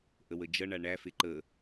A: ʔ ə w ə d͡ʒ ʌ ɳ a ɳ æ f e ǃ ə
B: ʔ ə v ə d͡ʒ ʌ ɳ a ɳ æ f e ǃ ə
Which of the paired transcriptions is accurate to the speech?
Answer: A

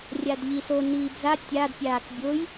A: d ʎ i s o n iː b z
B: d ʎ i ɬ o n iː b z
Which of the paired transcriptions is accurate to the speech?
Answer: A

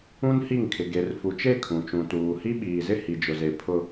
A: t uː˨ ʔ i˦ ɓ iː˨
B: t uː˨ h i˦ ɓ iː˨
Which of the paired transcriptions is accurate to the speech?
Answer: B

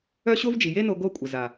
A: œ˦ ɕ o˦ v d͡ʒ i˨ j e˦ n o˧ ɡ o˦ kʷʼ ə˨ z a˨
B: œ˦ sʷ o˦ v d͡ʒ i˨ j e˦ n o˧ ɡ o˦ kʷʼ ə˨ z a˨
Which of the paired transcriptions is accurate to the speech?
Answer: A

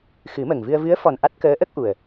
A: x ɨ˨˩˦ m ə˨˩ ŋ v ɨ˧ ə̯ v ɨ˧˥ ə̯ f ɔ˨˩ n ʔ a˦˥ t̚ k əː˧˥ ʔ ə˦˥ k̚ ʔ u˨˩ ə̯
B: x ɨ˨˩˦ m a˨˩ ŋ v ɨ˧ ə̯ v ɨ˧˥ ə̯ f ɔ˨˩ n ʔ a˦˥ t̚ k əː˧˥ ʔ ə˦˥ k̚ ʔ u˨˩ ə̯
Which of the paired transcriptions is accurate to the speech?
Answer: A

